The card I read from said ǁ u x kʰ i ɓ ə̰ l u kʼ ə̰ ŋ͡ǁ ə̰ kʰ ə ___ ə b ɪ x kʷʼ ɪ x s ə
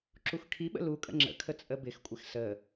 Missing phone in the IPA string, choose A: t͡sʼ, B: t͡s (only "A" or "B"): A